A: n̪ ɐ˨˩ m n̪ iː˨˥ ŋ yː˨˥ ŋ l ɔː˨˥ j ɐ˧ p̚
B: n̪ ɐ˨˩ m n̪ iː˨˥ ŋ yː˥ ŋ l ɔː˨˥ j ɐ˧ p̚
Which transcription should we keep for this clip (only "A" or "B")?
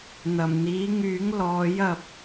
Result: A